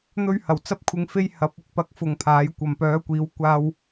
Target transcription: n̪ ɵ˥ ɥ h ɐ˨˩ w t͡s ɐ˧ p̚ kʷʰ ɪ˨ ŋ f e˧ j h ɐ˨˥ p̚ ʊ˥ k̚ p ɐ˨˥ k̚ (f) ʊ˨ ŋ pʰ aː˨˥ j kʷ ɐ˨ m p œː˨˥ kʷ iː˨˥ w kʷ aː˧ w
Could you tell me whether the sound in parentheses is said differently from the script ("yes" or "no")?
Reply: no